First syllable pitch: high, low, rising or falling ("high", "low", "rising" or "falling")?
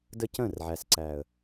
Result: high